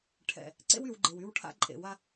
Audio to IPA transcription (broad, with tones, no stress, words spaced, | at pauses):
ʈʰɛ̰˨ | ǀḛ˦wy˨w ɡ͡ǃe˨wy˦wʈʰa̰˦ ǃʼḛ˨ wa˦